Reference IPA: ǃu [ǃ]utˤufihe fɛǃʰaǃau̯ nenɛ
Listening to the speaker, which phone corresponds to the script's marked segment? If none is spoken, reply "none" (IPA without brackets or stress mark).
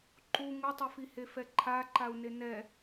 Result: ŋ